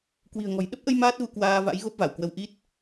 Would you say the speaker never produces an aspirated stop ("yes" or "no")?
yes